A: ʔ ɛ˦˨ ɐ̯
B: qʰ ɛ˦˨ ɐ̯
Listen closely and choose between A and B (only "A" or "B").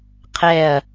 B